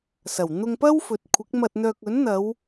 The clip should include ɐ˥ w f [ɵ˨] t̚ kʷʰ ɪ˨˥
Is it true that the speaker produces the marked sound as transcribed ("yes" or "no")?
yes